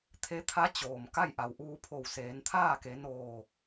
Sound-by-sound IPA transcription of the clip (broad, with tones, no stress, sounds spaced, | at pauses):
t̪ʰ e˧˥ t̪ʰ a˧˥ t͡ɕ oː˩ m k a˥˨ j ʔ a˩ w ʔ uː˧ pʰ o˧˩ w s eː˩˧ n t̪ʰ aː˥˨ k e˩˧ n oː˧˩